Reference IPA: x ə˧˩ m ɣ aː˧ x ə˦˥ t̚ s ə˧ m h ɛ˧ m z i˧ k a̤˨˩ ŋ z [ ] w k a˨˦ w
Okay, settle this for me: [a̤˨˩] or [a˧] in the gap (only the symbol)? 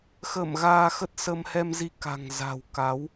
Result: a̤˨˩